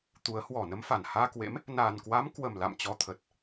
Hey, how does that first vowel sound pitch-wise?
rising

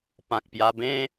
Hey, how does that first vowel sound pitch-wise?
low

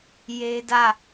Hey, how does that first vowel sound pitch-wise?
high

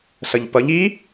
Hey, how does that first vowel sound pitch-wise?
low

